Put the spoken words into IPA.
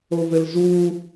ovɘlzu

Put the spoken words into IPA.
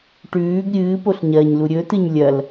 ʈʉːɡ ɾʲɨːpoɬɲɐːɲlu ɾʲɵtɨɲ lʲɐl

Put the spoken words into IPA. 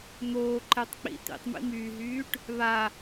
n̪oːǃɛtˤk͡pḭ t̪ḭtˤmḭmyːɦyːʈ | βa

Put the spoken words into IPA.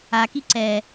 aki ǀɛ

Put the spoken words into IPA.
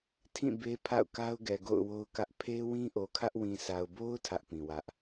tʰĩ˦˨ be˦pʰa̰˦˨ʊ̯ka˦ʊ̯ ɡɛ˨ɡo̰˦˨ʊ̯wo˦ʊ̯kä˦ʔ pʰe˦ wĩ˦ʔo˨kʰä˦ʔ wĩ˨sa˨ʊ̯bo˦ʊ̯ tʰä˦ʔpĩ˨wä˦ʔ

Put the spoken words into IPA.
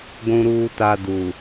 ɡʷũ˨ɾuː˨ta˨ du˨

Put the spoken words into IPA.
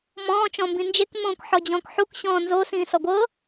mɔ̃ː t͡ʃɔ̃mbĩnd͡ʒek mõːkħɔd͡ʑɔ̃ːkħuk ɕɔ̃ːnzo sĩːsɔɡʷɤ

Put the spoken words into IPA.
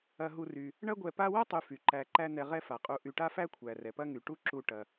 ɐ˨ɦu˨ry˩ | ɳɐ˦ɡʷɛ˨pa˦wɐ˥ tˤy˨ fy˩ǃæ˨ǃæ˦ n̪ɛ˨ʁɛ˦ fa˩qʼu˨ ʔy˨ʈa˥fæ˥ kʷʰæ˩rɛ˩pɐ˦ŋy˩ ʈu˦ǁu˨ ʈɐ˩

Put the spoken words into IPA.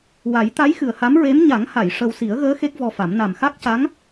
wa˨˩˦jt̪a˧˥j xɨ˨˩ə̯ha˧˥mɹe˧˥m ɲa˨˩˦ŋha˨˩˨j ʂə˧w si˨˩˦ə̯ɣəː˧˥ xe˦˥k̚vɔ˧fa˨˩˦m na˨˩mxa˦˥k̚ca˧˥ŋ

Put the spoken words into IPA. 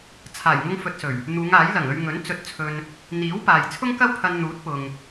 t͡sʰaː˨˩jŋʊ˧ŋ fɵ˨t̚sɵ˨˩ɥ | n̪uː˨˧ŋaː˨˥jlɐ˨˩ŋɵ˧ɥ ŋɵ˨˥n t͡sɵ˧t̚t͡sʰɵ˧n | n̪iː˨˥wpaː˨j t͡sʰʊ˥ŋkɐ˥wpʰɐ˧n n̪uː˨˥t̚pʊ˨ŋ

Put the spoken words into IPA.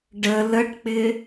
ɖə ləʈk͡pɪ

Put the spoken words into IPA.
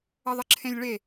əðˤəǁʰẽlʲɭe

